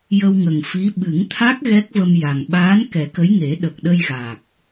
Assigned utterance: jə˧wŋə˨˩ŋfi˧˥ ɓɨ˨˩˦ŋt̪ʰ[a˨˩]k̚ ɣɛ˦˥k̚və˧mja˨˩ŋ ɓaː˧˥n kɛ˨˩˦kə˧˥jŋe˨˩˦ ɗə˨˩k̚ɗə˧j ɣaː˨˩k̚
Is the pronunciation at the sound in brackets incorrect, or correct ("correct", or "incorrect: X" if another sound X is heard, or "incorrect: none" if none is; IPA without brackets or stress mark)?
incorrect: a˦˥